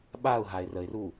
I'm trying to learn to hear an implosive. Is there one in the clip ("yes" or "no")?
yes